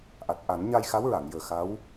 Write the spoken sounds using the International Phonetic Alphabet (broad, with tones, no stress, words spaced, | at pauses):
ʔa˨˩t̚ ʔa˨˩˦nɲa˧jxa˧˥wɹa˨˩˨ŋ jəː˨˩ xa˧˥w